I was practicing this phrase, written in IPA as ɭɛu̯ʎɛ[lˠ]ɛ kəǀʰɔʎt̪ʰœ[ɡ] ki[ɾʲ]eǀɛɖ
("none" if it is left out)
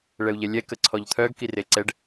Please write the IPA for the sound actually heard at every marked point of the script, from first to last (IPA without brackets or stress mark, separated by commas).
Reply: lʲ, ɡ, r